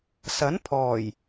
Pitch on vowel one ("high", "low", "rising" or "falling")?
rising